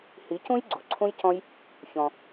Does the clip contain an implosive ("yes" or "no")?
no